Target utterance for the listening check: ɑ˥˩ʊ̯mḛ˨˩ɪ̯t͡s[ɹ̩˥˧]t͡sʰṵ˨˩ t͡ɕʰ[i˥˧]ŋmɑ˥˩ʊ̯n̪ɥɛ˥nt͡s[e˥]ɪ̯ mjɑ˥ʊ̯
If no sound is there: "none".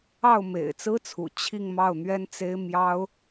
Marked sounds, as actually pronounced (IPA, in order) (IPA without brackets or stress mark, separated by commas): ɹ̩˥, i˥˧, e˥